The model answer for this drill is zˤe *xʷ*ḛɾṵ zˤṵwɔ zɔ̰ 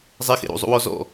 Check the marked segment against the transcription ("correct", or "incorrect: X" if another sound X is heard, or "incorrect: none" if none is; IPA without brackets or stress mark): incorrect: x